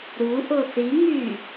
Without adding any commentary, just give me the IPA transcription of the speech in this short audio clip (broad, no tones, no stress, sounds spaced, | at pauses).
ɾ u ʔ o θ i ŋ y